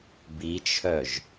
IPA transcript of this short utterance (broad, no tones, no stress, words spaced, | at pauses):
bit͡ʃʰœʒ